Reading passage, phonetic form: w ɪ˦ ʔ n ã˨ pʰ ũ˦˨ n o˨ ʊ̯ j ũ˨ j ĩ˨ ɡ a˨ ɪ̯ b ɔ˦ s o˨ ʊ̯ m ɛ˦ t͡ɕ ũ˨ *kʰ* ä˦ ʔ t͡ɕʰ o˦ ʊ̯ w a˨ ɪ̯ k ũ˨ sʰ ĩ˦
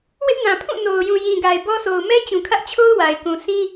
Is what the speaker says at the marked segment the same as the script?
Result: yes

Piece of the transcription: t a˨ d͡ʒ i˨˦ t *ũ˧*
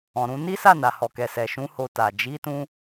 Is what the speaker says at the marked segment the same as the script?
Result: yes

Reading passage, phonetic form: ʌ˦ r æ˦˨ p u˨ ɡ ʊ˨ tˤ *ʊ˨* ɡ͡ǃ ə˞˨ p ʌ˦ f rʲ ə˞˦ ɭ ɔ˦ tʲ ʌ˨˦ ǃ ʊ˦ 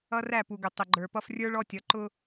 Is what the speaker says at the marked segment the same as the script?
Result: no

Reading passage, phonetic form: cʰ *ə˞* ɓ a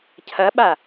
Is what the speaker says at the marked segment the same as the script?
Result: no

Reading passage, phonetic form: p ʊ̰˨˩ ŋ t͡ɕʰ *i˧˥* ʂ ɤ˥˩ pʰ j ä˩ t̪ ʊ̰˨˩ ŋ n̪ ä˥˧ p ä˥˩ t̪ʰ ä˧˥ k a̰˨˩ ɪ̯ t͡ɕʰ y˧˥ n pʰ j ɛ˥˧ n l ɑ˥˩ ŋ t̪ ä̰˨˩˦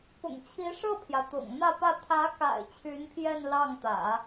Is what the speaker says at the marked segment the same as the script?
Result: yes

